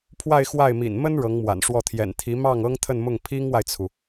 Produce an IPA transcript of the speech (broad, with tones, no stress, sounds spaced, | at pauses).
pʰ w a˥˧ ɪ̯ x w a˥˩ ɪ̯ m ḭ˨˩ n m ə˥ n ɻ ɤ˧˥ ŋ m w a̰˨˩ n ʂ w ɔ˥˩ t̪ʰ j ɛ̰˨˩ n t̪ʰ i˧˥ m ɑ˥˩ ŋ ɤ˥ ŋ t̪ʰ ə˥˧ n m ʊ˥˩ ŋ pʰ i˥ ŋ w a˨ ɪ̯ t͡sʰ u˩